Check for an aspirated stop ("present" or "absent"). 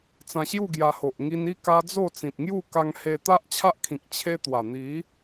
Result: present